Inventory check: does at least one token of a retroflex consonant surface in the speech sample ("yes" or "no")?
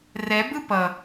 no